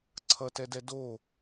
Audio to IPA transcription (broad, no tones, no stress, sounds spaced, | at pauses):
ǀʰ ʌ t ɛ d ɛ d o